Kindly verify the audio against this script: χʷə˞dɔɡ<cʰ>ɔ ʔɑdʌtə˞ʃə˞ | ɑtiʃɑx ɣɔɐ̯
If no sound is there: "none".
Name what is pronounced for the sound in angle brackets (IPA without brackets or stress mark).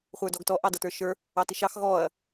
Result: t